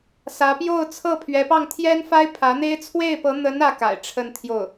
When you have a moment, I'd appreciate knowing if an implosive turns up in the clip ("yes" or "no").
no